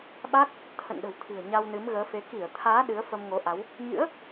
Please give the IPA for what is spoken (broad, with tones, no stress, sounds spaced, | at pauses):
ɓ a˦˥ k̚ | t̪ʰ ə̰˧˨ n ɗ ə̤˨˩ w t̪ʰ ɨ̤˨˩ ə̯ ɲ a˧ w n ɨ˨˦ m ɣ əː˨˦ f e˨˦ k i˧˩ ə̯ t̪ʰ aː˨˦ ɗ ɨ˨˦ ə̯ f ə˧ m ŋ o˨˦ ʔ a˨˦ w | ɲ ɨ̰˧˥ ə̯